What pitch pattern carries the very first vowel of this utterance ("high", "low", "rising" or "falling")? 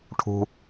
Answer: low